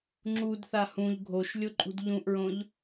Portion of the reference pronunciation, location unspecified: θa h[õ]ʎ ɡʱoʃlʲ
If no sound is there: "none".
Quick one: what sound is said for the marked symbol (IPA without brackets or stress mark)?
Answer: ũ